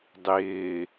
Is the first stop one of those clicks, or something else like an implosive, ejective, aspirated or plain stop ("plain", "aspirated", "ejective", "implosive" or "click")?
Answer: plain